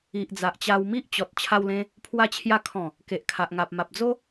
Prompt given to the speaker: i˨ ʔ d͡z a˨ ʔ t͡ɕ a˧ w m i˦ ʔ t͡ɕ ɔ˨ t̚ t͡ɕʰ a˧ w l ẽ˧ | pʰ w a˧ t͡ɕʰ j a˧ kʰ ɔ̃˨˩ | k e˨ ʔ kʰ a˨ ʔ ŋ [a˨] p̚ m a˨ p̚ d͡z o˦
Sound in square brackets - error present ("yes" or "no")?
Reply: no